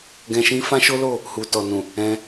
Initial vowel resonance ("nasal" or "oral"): nasal